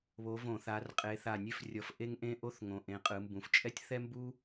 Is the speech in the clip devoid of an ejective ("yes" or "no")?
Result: no